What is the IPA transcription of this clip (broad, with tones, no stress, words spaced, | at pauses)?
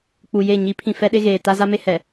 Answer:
k͡pu˨je˦˨ ɲi˨˦pʰĩ˨ fɛ˦ɗe˦ɣeː˨ ta˦za˦me˦ hɛ˨